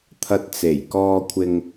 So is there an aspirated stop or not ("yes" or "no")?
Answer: yes